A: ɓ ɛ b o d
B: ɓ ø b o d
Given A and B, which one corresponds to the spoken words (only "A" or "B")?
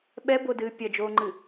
A